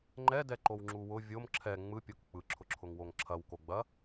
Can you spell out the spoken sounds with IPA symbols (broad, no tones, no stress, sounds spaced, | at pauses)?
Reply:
ŋ͡ǃ ɛ d ɛ ǃ o w ŋ͡ǁ u w ʊ vʲ o m ǁʰ ɛ ŋ͡m ɯ pʲ o k k͡p ɯ ǁʰ ʊ ǁʰ ʊ ŋ w o ŋ ǁʰ ɐ w k o ɡ͡b ɐ